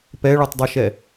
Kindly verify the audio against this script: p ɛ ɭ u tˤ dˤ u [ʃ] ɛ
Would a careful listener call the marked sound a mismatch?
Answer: no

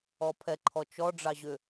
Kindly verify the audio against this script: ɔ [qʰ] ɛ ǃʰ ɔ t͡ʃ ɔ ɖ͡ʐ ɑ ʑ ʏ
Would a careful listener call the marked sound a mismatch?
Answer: yes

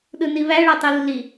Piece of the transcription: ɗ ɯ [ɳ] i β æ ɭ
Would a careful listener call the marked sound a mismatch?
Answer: yes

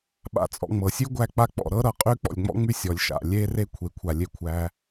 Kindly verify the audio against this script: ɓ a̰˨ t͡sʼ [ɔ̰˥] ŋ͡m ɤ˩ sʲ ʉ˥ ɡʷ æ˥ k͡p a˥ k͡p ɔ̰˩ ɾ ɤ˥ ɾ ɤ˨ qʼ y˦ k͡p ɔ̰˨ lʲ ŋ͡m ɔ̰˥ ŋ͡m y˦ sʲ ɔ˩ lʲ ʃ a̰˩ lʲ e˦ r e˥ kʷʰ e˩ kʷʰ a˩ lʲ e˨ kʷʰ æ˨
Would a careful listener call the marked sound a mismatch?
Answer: yes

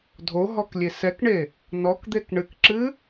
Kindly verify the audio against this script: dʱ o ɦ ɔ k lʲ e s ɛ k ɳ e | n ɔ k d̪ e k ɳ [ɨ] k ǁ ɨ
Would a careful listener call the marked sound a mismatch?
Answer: no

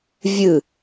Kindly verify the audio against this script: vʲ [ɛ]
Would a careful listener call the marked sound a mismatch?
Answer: yes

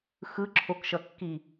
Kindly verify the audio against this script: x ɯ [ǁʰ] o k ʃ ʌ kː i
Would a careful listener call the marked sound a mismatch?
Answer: no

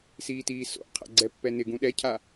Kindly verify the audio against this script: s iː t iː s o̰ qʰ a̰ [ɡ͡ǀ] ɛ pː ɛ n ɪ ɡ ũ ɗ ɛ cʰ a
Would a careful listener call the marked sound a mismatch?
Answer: no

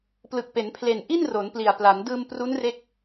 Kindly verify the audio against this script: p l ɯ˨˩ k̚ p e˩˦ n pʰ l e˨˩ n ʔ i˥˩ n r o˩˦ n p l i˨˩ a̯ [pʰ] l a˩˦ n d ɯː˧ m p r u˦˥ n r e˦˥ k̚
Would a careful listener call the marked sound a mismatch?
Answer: yes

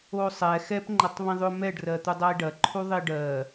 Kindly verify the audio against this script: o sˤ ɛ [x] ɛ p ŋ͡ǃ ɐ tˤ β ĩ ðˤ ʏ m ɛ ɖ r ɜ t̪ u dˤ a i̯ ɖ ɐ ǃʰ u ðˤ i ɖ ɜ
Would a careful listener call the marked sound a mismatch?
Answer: no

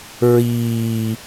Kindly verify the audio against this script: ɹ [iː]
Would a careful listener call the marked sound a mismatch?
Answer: no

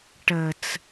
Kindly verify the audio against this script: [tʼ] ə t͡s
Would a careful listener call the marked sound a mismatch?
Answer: yes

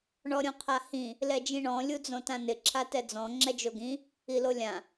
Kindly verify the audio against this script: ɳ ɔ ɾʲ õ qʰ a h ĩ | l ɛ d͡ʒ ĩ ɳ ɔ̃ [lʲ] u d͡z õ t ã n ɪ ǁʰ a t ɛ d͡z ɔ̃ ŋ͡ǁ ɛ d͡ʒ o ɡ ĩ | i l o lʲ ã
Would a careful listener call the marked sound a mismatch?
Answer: no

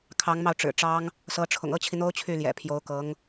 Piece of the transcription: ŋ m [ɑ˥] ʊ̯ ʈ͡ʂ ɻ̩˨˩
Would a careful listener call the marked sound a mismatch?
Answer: yes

